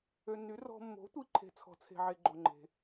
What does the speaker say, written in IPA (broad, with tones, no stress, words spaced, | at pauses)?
ø˨nːy˩˥ rɔ̤˨mːo̤˩˥tʷi˨ ǃʰe̤˨t͡sʰɔ̤˨t͡sʰe̤˨ʕe˨ ɡ͡ǃo˨ŋ͡ǃe̤˨